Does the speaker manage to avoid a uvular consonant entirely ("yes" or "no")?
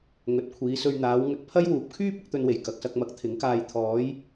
yes